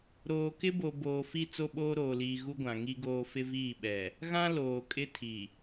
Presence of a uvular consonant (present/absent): absent